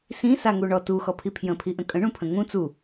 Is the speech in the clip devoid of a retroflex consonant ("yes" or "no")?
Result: no